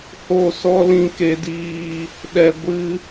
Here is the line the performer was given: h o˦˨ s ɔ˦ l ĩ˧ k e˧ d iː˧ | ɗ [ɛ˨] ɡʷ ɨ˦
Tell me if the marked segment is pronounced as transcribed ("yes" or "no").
no